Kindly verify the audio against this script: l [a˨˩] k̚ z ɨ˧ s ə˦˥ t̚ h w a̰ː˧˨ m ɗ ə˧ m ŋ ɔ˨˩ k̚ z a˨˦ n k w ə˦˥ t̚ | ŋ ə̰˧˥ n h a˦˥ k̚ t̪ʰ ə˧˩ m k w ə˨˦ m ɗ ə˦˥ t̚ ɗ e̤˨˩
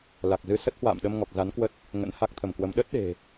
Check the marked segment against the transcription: correct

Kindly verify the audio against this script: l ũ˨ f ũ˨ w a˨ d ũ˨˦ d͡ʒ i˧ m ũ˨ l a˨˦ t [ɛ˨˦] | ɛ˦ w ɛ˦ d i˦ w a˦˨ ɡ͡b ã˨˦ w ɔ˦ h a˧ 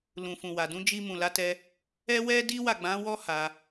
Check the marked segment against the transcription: incorrect: ɛ˧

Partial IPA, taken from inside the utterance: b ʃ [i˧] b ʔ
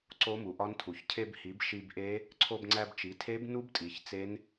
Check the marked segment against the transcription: correct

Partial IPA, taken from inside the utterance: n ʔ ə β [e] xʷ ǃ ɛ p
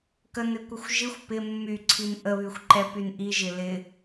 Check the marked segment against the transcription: incorrect: y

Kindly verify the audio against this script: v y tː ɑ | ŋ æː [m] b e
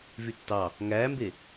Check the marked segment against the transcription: correct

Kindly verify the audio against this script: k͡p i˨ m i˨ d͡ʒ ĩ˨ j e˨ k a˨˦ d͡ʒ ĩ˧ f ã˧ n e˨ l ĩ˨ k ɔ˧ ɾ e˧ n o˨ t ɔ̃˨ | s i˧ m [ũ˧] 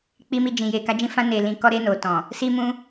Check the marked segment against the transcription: correct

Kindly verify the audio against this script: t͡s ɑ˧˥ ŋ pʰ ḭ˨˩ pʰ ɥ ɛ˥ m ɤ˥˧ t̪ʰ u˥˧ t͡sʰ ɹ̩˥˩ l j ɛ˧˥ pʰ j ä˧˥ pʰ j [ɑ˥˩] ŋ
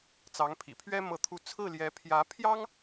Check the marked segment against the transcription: incorrect: ɑ˥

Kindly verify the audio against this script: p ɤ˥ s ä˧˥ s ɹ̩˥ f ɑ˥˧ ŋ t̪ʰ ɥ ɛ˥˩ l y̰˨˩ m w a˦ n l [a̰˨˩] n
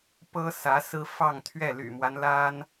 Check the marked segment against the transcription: incorrect: a˥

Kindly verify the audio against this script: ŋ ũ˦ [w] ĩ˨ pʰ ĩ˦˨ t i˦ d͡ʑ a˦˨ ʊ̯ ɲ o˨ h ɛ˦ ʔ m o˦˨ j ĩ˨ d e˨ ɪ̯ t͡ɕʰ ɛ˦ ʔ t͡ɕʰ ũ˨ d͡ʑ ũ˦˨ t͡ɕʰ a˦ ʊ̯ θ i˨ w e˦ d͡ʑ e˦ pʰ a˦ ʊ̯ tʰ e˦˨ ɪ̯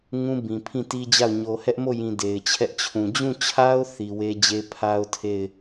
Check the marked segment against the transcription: incorrect: b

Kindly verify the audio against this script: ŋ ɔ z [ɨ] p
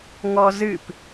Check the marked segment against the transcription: correct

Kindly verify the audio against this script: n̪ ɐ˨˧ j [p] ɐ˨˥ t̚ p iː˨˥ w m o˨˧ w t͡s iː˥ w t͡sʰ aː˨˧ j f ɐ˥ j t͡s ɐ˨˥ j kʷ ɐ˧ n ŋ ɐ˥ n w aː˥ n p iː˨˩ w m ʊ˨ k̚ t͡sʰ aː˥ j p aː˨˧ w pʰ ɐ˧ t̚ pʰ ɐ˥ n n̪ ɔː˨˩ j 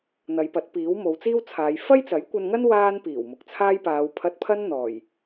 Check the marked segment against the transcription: correct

